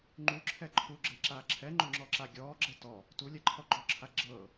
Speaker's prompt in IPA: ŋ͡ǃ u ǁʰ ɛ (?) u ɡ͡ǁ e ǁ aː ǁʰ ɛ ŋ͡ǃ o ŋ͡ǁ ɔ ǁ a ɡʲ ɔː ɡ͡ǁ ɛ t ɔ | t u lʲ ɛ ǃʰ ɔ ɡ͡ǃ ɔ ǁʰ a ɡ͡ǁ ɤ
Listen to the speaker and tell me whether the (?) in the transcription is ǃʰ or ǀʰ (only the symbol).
ǃʰ